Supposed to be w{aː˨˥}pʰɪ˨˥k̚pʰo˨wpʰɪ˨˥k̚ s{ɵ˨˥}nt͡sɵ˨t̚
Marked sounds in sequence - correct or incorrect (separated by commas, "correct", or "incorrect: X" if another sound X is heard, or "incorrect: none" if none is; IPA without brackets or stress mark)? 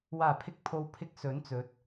incorrect: aː˨˩, correct